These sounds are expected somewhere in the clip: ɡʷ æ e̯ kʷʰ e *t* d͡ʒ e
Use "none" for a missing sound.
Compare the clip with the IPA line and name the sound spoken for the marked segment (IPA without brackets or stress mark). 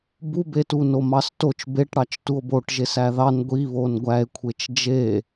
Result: t͡ʃ